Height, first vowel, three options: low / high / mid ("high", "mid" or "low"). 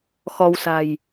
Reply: mid